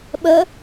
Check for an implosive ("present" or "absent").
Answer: present